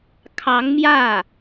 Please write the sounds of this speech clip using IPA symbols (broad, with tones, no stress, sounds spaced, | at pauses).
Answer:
kʰ ɑ˧˥ ŋ m j ä˥˩